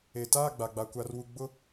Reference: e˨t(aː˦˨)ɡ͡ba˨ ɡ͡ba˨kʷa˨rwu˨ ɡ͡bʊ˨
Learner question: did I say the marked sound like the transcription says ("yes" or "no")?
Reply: yes